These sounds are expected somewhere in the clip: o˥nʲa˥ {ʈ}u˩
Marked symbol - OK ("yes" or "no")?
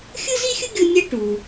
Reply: yes